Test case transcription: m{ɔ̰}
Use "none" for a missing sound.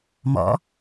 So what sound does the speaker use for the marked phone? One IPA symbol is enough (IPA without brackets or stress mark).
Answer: ɔ̰